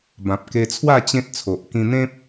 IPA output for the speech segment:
b ã˨ p̚ k e˧ t͡sʰ w a˥˧ t͡ɕ ẽ˦ t̚ t͡sʰ o˨ ʔ k ĩ˧ n̪ ẽ˦ p̚

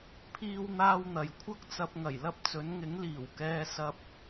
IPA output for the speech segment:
pʰ iː˥ w n̪ aː˥ w n̪ ɐ˨ j kʷʰ ɐ˥ k̚ t͡s ɐ˧ p̚ ŋ ɐ˨˩ j l ɐ˥ p̚ t͡s ɵ˨˥ n ŋ ɪ˨˥ ŋ l iː˨˩ w k ɛː˧ s ɐ˧ p̚

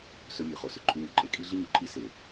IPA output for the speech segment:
s ɵ˧ mʲ ʉ˨ χ o˨ s ɵ˨ ǃʼ ʉ˧ ɲ ɵ˨ ǃʼ e˧ kʼ i˧ ɮ i˧ ɲ u˨ ǃʼ i˧ s e˨

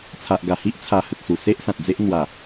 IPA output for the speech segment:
t͡sʰ a˨ ʔ ɡ a˨˩ h i˦ ʔ t͡sʰ a˧ h ə˨ k̚ s u˨˩ s e˦ ʔ s ã˨ t̚ d͡z e˦ ʔ n̪ w a˨˩

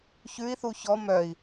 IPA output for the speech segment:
ç ʉ i̯ θ u ç ɔ m œ i̯

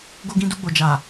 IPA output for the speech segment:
ɡ o˧ ɡ ĩ˧ d u˧ ɡ͡b o˨ d͡ʒ a˨

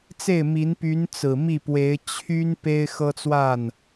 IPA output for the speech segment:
t͡s e˥˩ ɪ̯ m i˧˥ n p y˧˥ n t͡s ɹ̩˨˩ m i˥˩ p w e˧˥ ɪ̯ t͡ɕʰ y˥ n p e˥ ɪ̯ x ɤ˥ t͡s w a˥˩ n

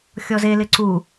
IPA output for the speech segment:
xʲ ɔ z e l ɪ ǀ u

